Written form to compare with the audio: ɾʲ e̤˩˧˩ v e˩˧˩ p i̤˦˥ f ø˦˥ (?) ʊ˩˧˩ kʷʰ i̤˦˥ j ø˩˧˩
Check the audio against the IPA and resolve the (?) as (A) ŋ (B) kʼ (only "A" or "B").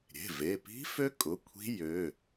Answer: B